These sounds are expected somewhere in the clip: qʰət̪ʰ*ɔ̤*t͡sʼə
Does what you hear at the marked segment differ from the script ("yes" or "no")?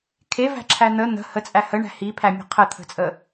yes